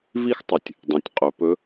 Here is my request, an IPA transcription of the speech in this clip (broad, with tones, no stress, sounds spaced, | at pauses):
v i˥ x tˤ u˩ tʲ | dˤ ẽ˩˧ tʲ qʼ ɵ˩˧ p ɵ˧˥